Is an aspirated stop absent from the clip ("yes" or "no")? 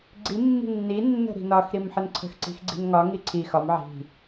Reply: no